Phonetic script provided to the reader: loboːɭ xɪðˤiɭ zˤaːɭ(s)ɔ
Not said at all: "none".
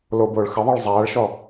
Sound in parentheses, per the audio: ʃ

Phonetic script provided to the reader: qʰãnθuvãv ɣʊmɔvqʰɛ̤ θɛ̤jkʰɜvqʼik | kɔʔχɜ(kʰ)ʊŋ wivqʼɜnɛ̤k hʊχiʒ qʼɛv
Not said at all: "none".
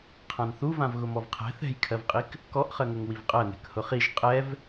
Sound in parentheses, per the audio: ŋ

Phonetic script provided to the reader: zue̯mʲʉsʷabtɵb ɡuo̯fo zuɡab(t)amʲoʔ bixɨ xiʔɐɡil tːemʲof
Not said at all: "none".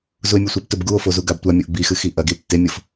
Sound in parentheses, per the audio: tʷ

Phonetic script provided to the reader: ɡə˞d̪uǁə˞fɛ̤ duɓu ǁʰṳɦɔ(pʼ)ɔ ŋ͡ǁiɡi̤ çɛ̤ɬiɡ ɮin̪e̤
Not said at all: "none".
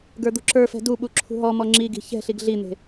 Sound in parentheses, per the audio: m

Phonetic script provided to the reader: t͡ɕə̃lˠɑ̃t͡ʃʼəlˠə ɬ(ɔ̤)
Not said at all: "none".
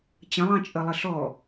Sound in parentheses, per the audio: ɔ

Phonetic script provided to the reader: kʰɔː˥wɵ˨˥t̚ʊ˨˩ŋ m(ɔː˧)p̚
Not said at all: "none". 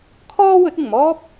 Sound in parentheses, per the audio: ɔː˥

